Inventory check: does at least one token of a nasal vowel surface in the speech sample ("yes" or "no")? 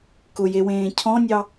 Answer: yes